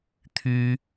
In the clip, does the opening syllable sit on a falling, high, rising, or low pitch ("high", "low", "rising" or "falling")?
high